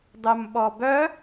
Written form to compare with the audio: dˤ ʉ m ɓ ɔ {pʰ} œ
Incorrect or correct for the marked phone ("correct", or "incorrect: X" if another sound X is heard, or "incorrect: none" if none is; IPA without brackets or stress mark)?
incorrect: b